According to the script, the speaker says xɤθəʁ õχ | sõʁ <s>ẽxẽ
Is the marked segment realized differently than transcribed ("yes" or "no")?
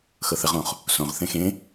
yes